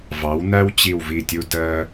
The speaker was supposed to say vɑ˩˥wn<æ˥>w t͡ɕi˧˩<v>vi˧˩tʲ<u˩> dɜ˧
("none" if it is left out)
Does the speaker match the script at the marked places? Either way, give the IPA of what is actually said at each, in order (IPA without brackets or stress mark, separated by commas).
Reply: æ˥, w, u˧